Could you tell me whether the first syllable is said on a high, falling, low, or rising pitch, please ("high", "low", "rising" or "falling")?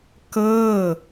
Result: falling